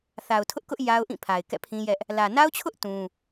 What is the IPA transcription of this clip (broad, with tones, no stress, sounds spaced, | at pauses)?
θ a˨ ʊ̯ tʰ ʊ˦ ʔ k ʊ˦ ʔ j a˦ ʊ̯ ʔ ĩ˦˨ pʰ a˨ ɪ̯ k ɛ̰˦˨ pʰ ĩ˦ j ɛ˦ ʔ | l ä˨ n a˦ ʊ̯ t͡ɕʰ ʊ˦ ʔ t ũ˦